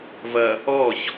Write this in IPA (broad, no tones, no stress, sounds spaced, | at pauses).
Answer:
v ɐ | ɔ ç